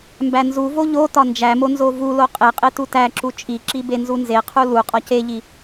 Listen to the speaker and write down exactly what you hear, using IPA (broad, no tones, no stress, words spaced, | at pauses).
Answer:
mbænzuvo ʎotɒ nd͡ʒæmo nzovulo qʼeqʼe tutæǁu t͡ʃʼiǁi benzunzeqʰu lu qʼɒceʎi